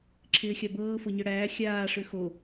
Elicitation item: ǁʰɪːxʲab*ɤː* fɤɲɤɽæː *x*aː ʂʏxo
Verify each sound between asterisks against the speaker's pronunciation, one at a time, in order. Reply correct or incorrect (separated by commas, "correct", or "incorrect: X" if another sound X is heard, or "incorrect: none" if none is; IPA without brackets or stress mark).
correct, incorrect: xʲ